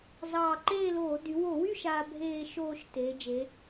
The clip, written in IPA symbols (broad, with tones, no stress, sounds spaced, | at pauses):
z ɑː˧˩ ǃ eː˥˨ l oː˧˩˧ d y˩˧ w o˧˩˧ w y˥˨ ʃ aː˦ bʱ eː˥˨ ʃ oː˥˨ ʃ t eː˩˧ d͡ʒ e˩˧